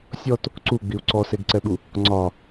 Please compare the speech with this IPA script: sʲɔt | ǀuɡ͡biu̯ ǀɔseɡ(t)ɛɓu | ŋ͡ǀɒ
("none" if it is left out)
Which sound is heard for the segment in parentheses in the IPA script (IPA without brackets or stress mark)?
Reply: ǀ